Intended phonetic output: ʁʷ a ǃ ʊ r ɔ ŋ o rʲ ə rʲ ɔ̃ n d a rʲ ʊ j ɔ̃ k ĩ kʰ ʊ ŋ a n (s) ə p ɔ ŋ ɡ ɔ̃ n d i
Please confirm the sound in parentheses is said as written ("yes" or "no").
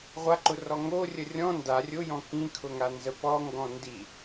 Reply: no